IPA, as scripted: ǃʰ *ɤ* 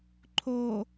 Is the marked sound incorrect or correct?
incorrect